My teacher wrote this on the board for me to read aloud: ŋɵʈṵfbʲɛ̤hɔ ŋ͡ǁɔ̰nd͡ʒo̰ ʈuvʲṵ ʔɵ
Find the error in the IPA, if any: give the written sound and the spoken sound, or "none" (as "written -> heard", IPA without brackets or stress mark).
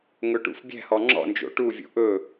none